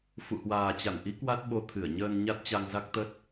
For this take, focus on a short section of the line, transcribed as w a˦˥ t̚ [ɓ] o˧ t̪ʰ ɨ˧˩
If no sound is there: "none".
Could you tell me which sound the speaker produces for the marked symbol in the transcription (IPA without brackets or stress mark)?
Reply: ɓ